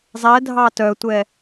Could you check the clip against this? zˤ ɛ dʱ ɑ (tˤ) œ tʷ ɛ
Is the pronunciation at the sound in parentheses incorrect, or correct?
incorrect